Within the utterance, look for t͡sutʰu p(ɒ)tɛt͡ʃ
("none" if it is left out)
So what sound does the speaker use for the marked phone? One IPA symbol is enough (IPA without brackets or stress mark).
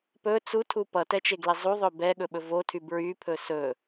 ʌ